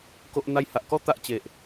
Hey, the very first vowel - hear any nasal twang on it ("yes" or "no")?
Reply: no